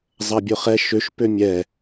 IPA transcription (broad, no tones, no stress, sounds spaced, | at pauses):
zˤ ɐ bʲ ʊ χ ɛ ʃ ø ʃ p ø mʲ ɛ